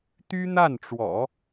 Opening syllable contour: high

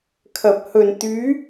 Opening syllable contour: low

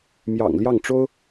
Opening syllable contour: low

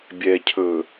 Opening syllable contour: low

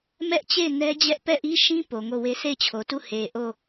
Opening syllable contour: high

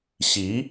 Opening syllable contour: rising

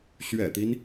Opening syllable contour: low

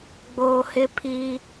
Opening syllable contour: low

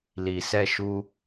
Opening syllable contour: low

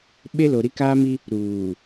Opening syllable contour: high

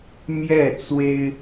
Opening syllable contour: falling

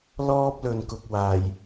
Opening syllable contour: high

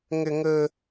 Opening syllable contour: high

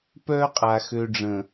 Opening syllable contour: high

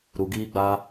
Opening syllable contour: low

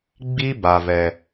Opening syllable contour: high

